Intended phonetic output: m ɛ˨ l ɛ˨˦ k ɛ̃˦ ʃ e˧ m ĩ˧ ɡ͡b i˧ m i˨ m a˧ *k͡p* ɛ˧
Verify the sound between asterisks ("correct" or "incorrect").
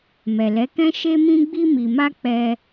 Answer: correct